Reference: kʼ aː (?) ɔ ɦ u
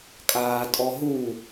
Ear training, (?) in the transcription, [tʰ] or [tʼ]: tʼ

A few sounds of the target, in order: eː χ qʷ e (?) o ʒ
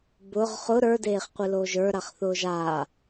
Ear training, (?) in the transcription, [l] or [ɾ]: l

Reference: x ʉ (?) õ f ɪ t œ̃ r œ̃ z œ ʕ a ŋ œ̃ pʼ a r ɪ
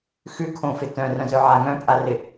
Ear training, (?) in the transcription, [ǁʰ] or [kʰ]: kʰ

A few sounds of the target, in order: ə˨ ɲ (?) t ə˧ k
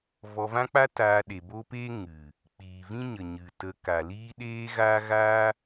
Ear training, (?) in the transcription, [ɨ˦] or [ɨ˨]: ɨ˨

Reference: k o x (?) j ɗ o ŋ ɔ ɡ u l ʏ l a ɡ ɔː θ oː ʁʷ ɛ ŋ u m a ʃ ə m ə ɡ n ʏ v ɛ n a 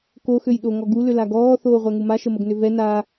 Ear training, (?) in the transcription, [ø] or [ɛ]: ø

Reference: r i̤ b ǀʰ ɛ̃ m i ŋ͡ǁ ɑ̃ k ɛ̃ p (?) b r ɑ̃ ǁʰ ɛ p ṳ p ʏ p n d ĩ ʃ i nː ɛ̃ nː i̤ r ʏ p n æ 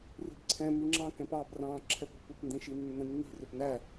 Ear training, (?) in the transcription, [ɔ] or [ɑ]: ɑ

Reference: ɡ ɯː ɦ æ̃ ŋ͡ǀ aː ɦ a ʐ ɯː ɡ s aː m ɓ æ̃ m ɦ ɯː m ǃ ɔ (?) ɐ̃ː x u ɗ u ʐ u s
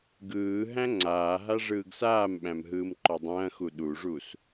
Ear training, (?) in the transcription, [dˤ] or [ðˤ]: dˤ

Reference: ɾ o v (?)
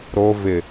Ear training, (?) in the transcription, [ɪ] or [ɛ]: ɪ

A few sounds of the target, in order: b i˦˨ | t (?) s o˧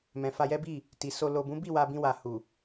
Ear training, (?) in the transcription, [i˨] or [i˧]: i˨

